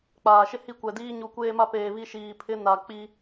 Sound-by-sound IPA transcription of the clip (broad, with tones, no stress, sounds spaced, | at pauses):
k͡p aː˨ ʃ ɪ˦ h i˦ kʷ ɛ˨ d iː˦ ɲ u˨ kʷ eː˦ m a˦ p eː˨ β i˦ ʃ iː˨ pʰ ɪ˦ n a˨ k͡p i˦